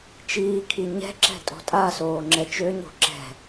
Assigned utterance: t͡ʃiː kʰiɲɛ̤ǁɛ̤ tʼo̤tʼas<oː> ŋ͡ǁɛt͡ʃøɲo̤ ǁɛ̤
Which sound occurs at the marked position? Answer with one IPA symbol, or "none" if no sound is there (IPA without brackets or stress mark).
oː